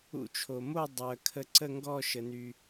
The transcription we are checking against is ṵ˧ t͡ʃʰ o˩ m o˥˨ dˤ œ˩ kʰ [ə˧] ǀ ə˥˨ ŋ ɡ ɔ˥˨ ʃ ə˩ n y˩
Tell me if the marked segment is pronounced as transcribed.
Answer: yes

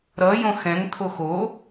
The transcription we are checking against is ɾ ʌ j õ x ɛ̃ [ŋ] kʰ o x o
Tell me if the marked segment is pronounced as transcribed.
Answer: yes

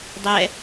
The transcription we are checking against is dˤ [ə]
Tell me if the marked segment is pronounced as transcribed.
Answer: no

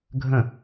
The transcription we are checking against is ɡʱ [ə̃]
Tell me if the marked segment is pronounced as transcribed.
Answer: yes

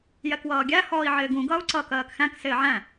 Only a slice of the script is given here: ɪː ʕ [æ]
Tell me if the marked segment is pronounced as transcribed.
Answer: no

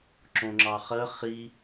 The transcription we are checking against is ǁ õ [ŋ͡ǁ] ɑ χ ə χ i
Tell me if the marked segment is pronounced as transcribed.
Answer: yes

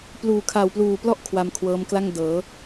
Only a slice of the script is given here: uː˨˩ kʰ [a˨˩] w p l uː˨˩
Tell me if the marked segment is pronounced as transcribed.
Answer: yes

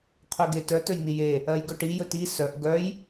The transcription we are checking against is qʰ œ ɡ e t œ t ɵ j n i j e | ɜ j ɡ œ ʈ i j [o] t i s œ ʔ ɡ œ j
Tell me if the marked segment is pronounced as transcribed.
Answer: no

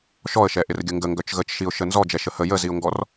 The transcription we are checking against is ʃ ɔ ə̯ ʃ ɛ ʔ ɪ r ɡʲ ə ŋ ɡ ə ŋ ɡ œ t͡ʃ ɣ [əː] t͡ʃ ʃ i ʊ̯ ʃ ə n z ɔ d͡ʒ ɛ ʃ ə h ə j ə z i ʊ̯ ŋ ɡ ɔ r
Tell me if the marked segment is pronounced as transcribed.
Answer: no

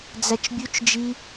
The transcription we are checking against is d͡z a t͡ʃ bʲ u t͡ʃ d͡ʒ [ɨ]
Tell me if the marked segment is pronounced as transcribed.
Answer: no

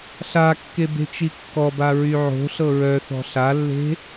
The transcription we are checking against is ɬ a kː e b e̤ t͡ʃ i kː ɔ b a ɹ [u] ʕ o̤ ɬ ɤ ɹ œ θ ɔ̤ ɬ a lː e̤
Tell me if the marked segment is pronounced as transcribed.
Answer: no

